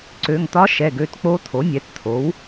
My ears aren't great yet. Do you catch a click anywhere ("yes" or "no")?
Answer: yes